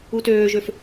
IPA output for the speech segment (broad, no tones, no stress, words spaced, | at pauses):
utøːʒøf